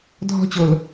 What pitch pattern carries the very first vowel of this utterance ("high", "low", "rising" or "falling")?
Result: falling